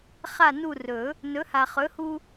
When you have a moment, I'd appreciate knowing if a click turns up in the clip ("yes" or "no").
no